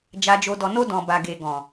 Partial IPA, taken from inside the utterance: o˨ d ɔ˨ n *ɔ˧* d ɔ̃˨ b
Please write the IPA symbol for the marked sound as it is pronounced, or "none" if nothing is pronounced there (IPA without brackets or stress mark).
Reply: o˧